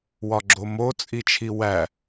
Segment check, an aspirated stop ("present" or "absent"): present